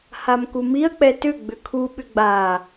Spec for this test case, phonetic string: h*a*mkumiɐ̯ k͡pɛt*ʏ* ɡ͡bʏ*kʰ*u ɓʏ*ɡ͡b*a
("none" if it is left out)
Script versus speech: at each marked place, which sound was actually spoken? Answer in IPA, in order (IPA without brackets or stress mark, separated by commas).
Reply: a, ʏ, kʰ, ɡ͡b